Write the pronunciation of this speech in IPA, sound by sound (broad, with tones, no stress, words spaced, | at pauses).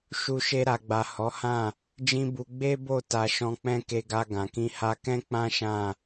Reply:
ʃu˧ʃe˧ɾa˨ɡ͡ba˨ hɔ˨˦hã˦˨ | d͡ʒĩ˦bu˧ ɡ͡be˦bo˦˨ ta˧ʃɔ̃˧k͡pɛ̃˦ ke˧ɡa˧ɡã˨kĩ˧ ha˧kɛ̃˦k͡pã˦ ʃã˦˨